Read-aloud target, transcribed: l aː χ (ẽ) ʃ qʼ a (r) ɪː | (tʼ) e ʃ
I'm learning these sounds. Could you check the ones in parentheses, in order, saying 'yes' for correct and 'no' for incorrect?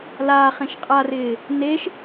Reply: yes, yes, no

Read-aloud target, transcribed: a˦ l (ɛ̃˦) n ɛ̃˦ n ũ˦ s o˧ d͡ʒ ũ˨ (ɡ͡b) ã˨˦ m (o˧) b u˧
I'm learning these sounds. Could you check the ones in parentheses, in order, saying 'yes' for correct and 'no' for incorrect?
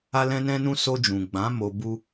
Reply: yes, yes, yes

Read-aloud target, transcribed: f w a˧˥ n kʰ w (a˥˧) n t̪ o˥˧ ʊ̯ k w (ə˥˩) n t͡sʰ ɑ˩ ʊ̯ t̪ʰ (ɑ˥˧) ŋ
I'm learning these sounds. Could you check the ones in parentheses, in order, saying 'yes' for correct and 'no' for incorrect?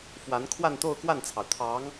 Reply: yes, no, no

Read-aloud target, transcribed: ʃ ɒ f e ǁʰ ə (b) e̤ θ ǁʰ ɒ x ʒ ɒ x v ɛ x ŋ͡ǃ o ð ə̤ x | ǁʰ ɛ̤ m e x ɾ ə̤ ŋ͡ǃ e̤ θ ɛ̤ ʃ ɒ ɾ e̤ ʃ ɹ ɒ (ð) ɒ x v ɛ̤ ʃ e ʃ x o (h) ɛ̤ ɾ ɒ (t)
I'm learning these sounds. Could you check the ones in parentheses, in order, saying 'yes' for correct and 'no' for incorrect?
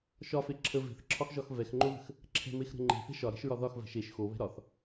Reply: no, yes, no, no

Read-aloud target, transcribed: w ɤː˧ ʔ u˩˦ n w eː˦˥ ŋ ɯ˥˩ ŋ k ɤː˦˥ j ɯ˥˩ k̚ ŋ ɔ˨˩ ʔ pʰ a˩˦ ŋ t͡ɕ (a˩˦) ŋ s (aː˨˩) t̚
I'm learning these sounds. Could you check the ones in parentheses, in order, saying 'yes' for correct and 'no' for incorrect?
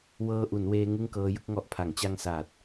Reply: no, yes

